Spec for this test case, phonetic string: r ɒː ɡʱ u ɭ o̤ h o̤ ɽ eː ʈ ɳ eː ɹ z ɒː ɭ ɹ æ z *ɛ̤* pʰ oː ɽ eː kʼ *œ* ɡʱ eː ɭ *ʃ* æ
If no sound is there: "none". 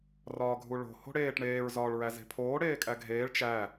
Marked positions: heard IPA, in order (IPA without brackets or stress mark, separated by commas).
e̤, æ, t͡ʃ